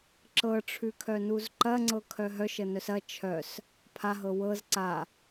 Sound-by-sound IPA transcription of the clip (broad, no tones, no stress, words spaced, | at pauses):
ǁɤʈ͡ʂʰʉkʰœnuz ǃɐŋ͡ǀɤkʰœ ɦœʃənœs ɐ t͡ʃʰœs | pʰaɦɤ wɤz ǀa